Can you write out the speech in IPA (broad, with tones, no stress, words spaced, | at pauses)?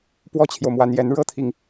pwɔ˥t͡ɕʰjo˨ʊ̯mwa˧˥njɛ˧˥n ɻɤ˥t̪ʰi˨ŋ